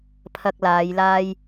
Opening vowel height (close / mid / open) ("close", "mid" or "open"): open